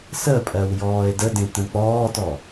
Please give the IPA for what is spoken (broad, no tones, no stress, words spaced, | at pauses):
səpʼɜw jɔːe̯dədẽ tə̃k͡pɔːtɔ